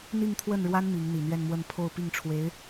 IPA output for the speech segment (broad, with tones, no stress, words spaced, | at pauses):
n̪i˥˧ŋt̪ʰwə˥˩nɻwa˥n mi˧˥ŋ n̪i˨˩n̪ɥɛ˥˧nmwə˥˧n pʰo˥˧ʊ̯pi˥˩ŋʈ͡ʂʰwe˧˥ɪ̯